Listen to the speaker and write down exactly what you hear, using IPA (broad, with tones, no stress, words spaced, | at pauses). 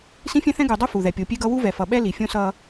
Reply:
sĩ˦fʲɛ̃˦θɛ̃˦ ɡu˨ dˤu˦ fu˨ðɛ˨ pʲo˨pʲe˦ɡʌ˦ wu˦vɛ˨fʌ˨ɓɛ˦ li˨fʲõ˦sʌ˦